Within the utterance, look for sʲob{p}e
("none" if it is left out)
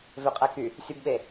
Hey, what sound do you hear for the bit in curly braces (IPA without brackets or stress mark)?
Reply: ɓ